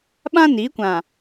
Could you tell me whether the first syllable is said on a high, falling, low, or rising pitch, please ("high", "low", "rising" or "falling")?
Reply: high